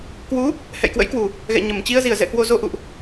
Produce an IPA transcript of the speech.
k w u˨˦ | h ɛ̰˧˨ j k w ə̰˧˥ j k w u˨˩ | ɣ ɛ̰˧˨ ɲ ə˧˩ m t͡ɕ i˧ ə̯ z i˧˩ ə̯ z ɛ̰˧˨ k w o˨˩ z o˨˩ ʔ ṵ˧˨ ʔ

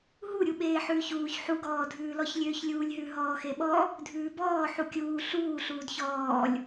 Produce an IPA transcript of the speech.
ɦ u ɾʲ u ɓ eː ħ ʉː ç uː ç ħ u ɡ ɔː dʱ ʉː l ɔ ç lʲ øː ç lʲ uː lʲ ɦ ʉ ɦ ɔː x e ɓ ɔ | dʱ ʉː b ɔː ħ u kʲ uː ɬ uː ɬ uː d ç ɔː lʲ

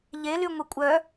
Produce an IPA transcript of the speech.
ʎ e l y ŋʷ e kʷʼ œ

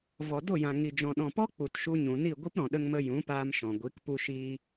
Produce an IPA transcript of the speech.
v ɔ˨ d o˦˨ j ã˨ ŋ i˨ d͡ʒ ɔ̃˨ ɗ ɔ̃˨ p ɔ˦ k͡p u˨ t ʃ u˧ ɲ ũ˨ n i˦˨ ɡʷ ɨ˦ p ɾ ɔ̃˨ ɗ ə˧ ŋ m ə˧ j ũ˨˦ p aː˧ m ʃ ɔ̃˨ ɡʷ i˨˦ k p u˧ ʃ iː˧

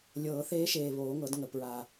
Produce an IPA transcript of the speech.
lʲ ɤː˨˩˦ θ eː˧˥ ʃ eː˨˩ β oː˨˩˦ ŋ ɤ˨˩˦ d ŋ ə˨˩ p ɹ a˨˩

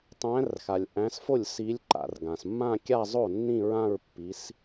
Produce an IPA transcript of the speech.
tˤ æ̃˨˦ r x a˩ lʲ ʔ æ̃˨˦ s f o˥˩ lʲ s i˨˦ lʲ ǃ a̰˩ r ɡ ã˩ s mː ã˥˧ kʲ a˥˧ zˤ o˥˩ nː ĩ˥˧ ɹ ã˥˧ ɹ pː i˨˦ s

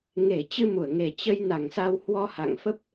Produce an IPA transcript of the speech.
ŋ e˧˩ t͡ɕ ɨ˧ m u˧˩ ə̯ ŋ e˨˩ t͡ɕ ə˧ j n a˧˩ ŋ s a˧ w h w ɔ˧ h a̰˧˨ ŋ f ə˦˥ p̚

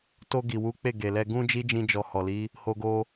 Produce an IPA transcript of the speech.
t o˧ ɡ i˨ w u˨˦ k͡p e˦˨ ɡ e˨ l ɛ˧ ɡ ũ˦ d͡ʒ i˦ d͡ʒ ĩ˧ d͡ʒ ɔ˨ h ɔ˨ l i˨˦ | h o˧ ɡ o˧

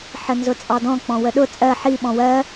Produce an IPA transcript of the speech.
ħ ə n z ʊ t͡sʼ ɑ d ɔ̃ k͡p ɔ̃ w ə ɗ ʊ t͡sʼ ɜ ħ i ɓ ɔ̃ w ɜ

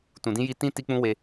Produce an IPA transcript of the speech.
t ũ˨ d ĩ˧ j i˧ t ĩ˦ t i˦ k͡p ũ˦ w e˧

